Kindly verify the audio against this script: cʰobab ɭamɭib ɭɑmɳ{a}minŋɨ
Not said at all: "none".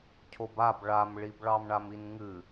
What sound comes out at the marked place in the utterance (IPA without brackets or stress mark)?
a